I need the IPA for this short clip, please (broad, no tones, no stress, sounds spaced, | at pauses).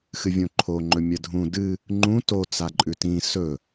x ɨ vʲ õ ǃʰ o ŋ͡ǃ ɵ mʲ ɐ dʱ ũ d ɨ | ŋ͡ǃ ũ t o t͡s a ǃʼ ʉ t ĩ s ɵ